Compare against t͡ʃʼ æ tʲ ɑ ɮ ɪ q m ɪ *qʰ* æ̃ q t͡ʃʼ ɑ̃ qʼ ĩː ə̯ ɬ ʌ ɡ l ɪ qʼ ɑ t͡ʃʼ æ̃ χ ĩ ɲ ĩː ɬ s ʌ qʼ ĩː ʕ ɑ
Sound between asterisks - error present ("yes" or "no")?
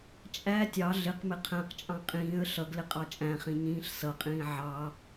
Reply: no